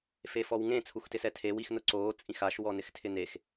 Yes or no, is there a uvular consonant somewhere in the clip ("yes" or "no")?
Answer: no